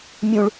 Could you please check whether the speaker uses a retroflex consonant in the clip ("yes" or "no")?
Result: yes